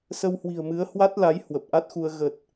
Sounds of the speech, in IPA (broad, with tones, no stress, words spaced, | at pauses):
sə˧whwi̤˨˩ə̯mɨ˨˦ə̯ hwa˦˥t̚la˨˦j hwə˨˩p̚ʔa˦˥t̚xu˧ə̯ ɣə˨˩t̚